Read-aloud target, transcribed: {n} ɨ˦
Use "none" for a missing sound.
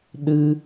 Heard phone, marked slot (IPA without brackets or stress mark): ɗ